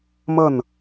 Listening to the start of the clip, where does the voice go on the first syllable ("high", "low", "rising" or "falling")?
falling